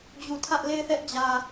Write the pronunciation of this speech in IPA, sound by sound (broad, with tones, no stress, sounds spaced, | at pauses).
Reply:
d͡ʑ u˨ tʰ ä˦ ʔ l e˦˨ ɪ̯ θ ɛ˦ ʔ d͡ʑ ä˨